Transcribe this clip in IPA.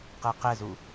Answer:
q ɛ q ɛ z u

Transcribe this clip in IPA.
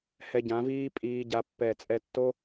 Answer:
h ɛ˧ ɟ ã˨˦ v iː˦ pʼ iː˦ ɟ a˦ pː ɛ˦˨ t͡sʼ ɛ˧ tː o˦

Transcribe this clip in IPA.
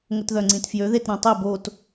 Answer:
ŋ ə t ð œ ŋ͡ǀ ĩ t f j ø ð e t ɾ ã tˤ e b o t

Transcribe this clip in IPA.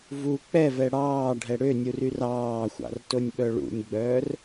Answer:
v u k͡p ɛ v ɛ ɽ ɑː ɖʱ ɛ ɽ ø nʲ u r y r ɑː xʷ ɑ̰ r t o nʲ ɓ œ ɭ ṵ nʲ ɡ͡b œː r

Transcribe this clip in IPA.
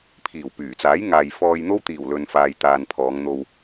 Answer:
pʰ iː˨˩ w p yː˨˩ t͡s aː˨˥ j ŋ aː˨ j f ɔː˧ j n̪ o˥ w t̪ iː˨˩ w l ɵ˨ n f aː˨ j t̪ aː˨ n pʰ ɔː˨˧ ŋ n̪ o˧ w

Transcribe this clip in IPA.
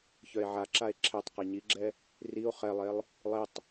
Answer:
ç œ e̯ ʕ a ǁ a e̯ ǁʰ ɛ tˤ q i ɲ i ɡ͡ǁ ɛ | r i o̯ χ ɛ lˠ e lˠ | lˠ i tˤ

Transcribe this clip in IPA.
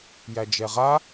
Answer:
j æ d͡ʒ ɛ ʁ a

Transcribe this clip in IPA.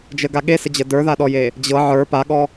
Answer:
d͡ʒ ə ɡ a ɠ e s ə d͡ʑ ə d ə˞ ð a ɗ ɔ j e | d͡ʑ ɤ ʕ ə˞ p a ɠ ɔ

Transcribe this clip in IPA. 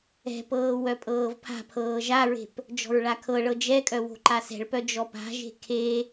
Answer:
ɛ̤ p ɤː w œ pʼ ɤː v pʰ a̤ pʰ ɤː ʒ a ɹ e̤ p | d͡ʒ ɔ̤ ɹ ɭ a kʰ ɤ ɭ ɤ d͡ʒ ɛ kʼ œ w o̤ ǃ a s ɛ̤ ɭ p œ d͡ʒ ɔ p a̤ ʒ e̤ kʰ e

